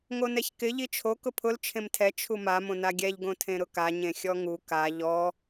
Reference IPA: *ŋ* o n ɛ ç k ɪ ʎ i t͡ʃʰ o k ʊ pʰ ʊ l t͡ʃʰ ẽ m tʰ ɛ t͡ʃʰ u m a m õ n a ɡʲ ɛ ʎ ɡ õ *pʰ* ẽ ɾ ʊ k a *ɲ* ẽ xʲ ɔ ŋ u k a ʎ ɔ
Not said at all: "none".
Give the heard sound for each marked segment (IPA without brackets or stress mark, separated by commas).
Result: ŋ, tʰ, ɲ